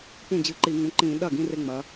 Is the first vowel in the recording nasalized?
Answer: yes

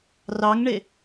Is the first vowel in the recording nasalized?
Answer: no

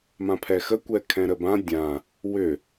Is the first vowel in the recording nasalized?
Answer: yes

